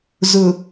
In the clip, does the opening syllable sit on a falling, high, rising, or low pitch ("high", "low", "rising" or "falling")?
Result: low